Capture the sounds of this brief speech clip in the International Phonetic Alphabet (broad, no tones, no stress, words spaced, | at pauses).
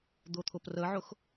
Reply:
d̪ʊt̪ʰʊprəʕʊx